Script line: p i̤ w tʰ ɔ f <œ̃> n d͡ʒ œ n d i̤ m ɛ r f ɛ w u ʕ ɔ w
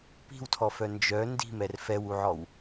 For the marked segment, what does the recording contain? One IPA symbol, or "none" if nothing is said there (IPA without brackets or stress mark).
œ